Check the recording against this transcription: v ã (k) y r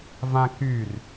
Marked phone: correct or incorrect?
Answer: correct